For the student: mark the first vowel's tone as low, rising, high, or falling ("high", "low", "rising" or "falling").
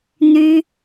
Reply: high